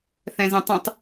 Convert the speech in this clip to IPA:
θ ɛ̃ z ɛ̃ tˤ ũ tˤ

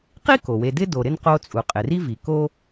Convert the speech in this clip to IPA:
q i˥ k o˩ w e˨ d ɪ˦ d o˨ ɾ ɪ˥ n q o˦ t͡sʼ u˩ qʼ ɪ˩ r i˦ v i˩ k o˥

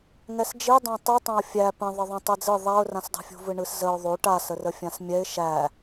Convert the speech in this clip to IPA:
ŋ ɛ s d͡ʒ i dˤ ã tˤ i tˤ ã ʊ̯ fʲ æ p ə̃ ðˤ ə ðˤ ə̃ tˤ i d͡z ɯ ðˤ a ʊ̯ r ã s dˤ ṳ fʲ ṳ v ɯ ɳ ɯ s z ə ʊ̯ ðˤ o ʈ a s ə r ə fʲ ã s mʲ ɛ ɪ̯ ʃ æ

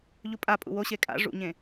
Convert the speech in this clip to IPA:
ʎ u pʼ a pʼ ṵ w o ɕ e kʼ a̰ ʐ ṵ ɲ ẽ

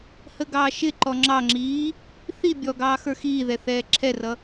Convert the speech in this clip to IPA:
h ə ɡ ɑː ʃ ɪ ǃ ɔ ŋ͡ǁ ɑ ŋ͡ǁ iː | θ i bʲ ɔ ɡ ɑː x ə˞ x iː ð ɛ θ ɛː ǁʰ ɛ r ʌ

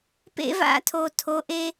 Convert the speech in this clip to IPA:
p ḛ˦ v a̰˦ tʰ o˨ tʰ o˨˦ ʔ e˦

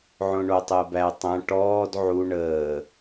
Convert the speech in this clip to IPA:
ʕ õ ɳ o tˤ əː b æ tˤ æ̃ ʈ ɔː d ʕ u ɳ əː

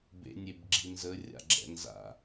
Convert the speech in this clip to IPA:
b ḛ nʲ e b ɡ͡ǁ i n z ə rʲ a̰ ɡ͡ǁ ɛ̰ n z a̰

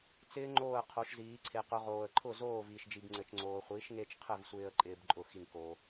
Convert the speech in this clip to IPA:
t͡s ɪː˦˥ ŋ͡ǃ oː˥˨ ə̯ qʰ o˨˥ ʃ z iː˨˥ ǀʰ e˧ q ʊ˦˥ ʁ oː˧ ə̯ ǃʰ ʊ˥˨ z oː˥˨ v iː˧ ʃ d͡ʒ i˧ b ŋ͡ǀ ɘ˧ t͡ʃ ŋ͡ǀ oː˧ χʷ iː˨˥ ʃ ŋ e˦˥ t͡ʃ qʰ ɘ˥˨ v sʷ ɪː˧ ə̯ ǃʼ ɪː˦˥ b ǃʼ ʊ˥˨ x i˥˨ ŋ k o˦˥

